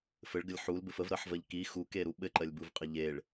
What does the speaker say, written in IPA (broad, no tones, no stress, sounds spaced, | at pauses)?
f ɘ ɭ ɡ ə lʲ ħ u l b ɘ f ə v ɾ ɜ ħ v ɜ ʎ k i x u k e ɾ u ɓ ɘ ǃ ɜ lʲ b u v qʼ ɘ ʎ e ɭ